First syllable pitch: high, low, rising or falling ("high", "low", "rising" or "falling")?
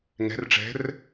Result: rising